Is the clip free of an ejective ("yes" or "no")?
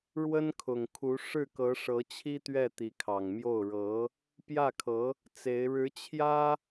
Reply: yes